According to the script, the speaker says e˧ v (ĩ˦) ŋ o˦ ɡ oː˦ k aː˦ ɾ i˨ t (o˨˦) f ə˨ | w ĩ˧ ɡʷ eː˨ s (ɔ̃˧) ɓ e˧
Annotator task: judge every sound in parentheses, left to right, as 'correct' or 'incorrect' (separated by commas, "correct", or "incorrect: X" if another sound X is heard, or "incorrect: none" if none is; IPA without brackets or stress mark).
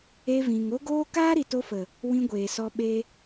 incorrect: ĩ˨, incorrect: o˧, incorrect: ɔ˧